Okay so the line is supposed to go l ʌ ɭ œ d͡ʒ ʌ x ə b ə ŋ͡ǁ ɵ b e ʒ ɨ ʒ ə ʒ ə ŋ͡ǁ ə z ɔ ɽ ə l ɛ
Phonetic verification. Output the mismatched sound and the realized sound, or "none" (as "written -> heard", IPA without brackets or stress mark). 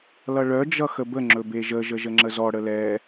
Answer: ɨ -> ə